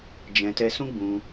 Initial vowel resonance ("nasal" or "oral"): nasal